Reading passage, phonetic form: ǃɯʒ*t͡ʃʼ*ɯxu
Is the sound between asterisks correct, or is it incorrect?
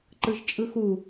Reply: correct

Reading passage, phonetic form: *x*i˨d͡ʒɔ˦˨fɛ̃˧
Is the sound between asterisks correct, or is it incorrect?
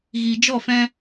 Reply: incorrect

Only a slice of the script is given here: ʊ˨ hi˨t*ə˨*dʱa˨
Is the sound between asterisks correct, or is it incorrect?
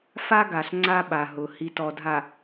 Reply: incorrect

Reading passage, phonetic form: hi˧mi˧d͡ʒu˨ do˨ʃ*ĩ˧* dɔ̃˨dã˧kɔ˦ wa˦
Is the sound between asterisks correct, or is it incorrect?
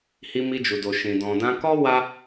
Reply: incorrect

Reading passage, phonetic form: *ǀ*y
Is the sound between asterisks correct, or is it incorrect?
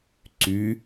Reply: correct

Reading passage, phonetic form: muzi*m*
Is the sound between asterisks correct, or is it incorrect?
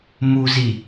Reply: incorrect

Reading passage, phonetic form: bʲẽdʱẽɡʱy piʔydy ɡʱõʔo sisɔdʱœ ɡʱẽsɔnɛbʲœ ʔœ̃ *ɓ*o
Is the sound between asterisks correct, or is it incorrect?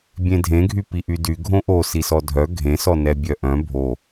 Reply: incorrect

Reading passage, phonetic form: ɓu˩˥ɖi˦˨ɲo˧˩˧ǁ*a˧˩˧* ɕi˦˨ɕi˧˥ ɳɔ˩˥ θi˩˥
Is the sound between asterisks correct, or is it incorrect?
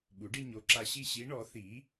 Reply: incorrect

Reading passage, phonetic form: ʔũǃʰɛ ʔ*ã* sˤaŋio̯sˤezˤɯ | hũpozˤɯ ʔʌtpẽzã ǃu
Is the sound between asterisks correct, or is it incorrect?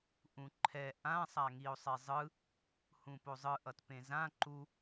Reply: correct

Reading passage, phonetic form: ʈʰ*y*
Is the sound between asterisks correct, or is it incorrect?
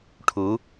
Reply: incorrect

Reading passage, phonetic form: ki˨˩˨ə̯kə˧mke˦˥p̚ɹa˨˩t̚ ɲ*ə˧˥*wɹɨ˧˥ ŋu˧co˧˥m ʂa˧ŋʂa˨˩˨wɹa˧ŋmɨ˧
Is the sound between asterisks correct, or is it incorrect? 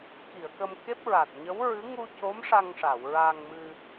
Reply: correct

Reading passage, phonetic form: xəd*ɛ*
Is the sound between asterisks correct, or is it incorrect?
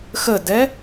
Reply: correct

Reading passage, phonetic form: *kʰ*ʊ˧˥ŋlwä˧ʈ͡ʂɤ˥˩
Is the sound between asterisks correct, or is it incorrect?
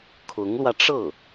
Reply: correct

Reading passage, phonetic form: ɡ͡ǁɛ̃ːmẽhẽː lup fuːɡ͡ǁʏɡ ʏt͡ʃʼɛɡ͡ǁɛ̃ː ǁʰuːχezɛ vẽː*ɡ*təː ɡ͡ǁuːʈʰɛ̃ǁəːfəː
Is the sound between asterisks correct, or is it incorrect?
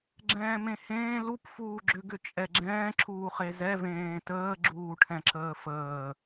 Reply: incorrect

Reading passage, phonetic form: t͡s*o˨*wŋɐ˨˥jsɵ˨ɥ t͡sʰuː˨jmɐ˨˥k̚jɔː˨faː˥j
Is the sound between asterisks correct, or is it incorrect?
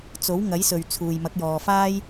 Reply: incorrect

